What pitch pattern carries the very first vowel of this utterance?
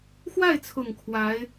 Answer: falling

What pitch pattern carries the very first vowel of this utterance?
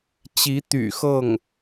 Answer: rising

